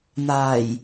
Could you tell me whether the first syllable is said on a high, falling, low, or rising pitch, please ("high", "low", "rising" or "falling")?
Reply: low